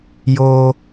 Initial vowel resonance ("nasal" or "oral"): oral